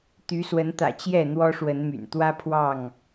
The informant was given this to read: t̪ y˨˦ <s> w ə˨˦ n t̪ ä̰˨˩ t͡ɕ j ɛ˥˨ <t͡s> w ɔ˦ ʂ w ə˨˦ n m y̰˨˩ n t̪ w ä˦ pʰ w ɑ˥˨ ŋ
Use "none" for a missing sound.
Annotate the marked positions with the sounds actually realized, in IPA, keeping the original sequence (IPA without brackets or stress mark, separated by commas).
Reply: s, n̪